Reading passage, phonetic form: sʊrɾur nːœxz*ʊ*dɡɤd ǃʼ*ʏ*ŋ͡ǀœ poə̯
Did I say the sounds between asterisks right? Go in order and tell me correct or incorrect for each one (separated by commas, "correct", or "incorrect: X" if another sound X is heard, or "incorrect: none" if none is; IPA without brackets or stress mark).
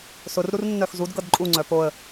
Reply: incorrect: u, incorrect: u